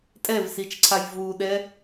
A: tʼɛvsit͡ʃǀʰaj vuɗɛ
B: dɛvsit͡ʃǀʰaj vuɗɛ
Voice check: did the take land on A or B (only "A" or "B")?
A